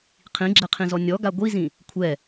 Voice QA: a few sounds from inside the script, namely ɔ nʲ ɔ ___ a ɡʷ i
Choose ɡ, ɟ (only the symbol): ɡ